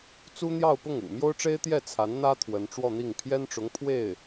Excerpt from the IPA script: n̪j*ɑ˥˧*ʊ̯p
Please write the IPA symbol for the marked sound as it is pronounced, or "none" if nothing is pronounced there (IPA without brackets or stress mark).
ɑ˥˧